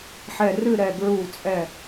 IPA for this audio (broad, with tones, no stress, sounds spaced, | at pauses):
ħ ɛ˧˩ r ɨ˥˧ ɾ ɛ˧˩ ɡ ɹ u˧˩ t͡sʼ ɛ˧˩